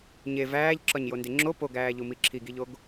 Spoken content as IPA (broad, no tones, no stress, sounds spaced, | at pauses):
ɲ e v æː ʎ ǁ ɒ ɲ j o n d e ŋ͡ǁ o p o ɡ æː ʎ u m i ǁʰ i ɡ i ʎ o ɡ